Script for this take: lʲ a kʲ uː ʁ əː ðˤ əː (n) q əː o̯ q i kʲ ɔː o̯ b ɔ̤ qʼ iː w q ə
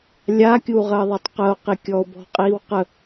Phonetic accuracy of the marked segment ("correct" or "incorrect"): incorrect